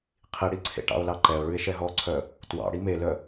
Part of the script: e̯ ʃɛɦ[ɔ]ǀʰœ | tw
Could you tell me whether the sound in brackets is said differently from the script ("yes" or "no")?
no